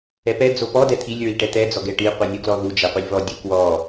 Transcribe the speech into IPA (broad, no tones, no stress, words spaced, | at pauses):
ɛpɛ d͡zopɔ dɛt̪ʰilʲ ɹiʈɛt̪ɛ d͡zɔɡɛʈi qʷinʲuɡlɔðu d͡ʒɛqʷɛlʲvɔ dʲukwɔ